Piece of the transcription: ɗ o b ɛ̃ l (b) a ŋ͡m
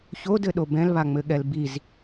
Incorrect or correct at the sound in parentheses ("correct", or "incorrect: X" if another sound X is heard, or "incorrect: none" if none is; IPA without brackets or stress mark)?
incorrect: β